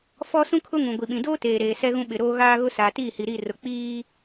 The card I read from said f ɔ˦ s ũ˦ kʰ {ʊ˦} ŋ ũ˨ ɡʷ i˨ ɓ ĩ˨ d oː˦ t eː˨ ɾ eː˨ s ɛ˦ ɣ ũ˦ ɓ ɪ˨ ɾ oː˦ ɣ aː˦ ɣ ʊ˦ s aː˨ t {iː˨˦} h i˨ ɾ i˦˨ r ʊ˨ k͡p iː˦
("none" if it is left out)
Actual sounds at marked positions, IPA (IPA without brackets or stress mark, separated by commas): ʊ˦, iː˦˨